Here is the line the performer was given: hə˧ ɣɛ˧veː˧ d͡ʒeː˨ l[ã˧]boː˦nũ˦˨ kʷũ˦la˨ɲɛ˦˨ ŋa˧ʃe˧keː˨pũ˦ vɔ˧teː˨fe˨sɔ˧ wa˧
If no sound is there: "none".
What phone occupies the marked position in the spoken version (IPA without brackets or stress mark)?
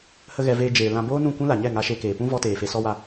ã˧